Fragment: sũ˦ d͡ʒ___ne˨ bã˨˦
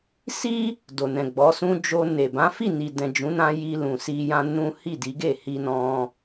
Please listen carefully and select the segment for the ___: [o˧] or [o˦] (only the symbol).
o˧